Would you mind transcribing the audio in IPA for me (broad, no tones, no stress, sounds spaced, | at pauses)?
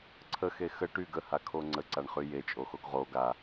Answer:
ǀʰ ə x e x ə ʈ y ɡ ə h a kʰ o ŋ͡ǀ ə ǀ a ɳ χ y j e t͡ʃʼ o x o ɡ ʁ o ɡ a